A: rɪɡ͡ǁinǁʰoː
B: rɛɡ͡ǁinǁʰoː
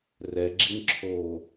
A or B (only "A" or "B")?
B